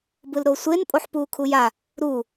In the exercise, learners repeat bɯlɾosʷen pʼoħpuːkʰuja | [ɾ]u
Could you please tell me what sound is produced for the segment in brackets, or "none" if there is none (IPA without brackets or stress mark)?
ɾ